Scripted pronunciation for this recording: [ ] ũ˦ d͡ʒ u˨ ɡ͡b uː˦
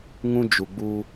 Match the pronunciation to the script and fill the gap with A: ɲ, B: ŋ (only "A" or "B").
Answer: B